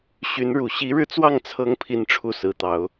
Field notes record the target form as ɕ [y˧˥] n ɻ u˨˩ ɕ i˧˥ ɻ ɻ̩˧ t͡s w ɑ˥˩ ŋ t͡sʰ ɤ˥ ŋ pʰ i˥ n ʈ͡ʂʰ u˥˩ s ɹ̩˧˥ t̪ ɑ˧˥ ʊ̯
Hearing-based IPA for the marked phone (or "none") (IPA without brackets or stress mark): y˧˥